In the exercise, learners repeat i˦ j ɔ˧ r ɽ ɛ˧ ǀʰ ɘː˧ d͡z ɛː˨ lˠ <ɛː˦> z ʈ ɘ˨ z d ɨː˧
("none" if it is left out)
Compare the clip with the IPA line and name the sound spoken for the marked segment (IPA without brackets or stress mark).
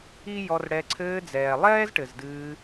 ɛː˦